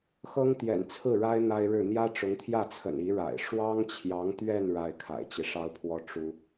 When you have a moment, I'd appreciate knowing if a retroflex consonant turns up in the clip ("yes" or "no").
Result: yes